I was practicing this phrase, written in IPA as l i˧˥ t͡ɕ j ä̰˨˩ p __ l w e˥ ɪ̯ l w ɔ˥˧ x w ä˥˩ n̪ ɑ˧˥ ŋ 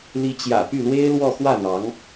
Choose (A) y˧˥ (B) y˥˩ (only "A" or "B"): B